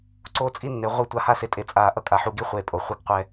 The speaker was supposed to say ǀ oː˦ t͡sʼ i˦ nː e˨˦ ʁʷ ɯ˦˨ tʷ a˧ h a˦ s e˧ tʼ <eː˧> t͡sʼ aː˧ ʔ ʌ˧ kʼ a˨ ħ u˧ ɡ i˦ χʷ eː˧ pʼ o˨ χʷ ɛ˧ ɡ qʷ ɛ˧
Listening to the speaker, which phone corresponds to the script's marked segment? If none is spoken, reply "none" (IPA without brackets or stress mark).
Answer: e˧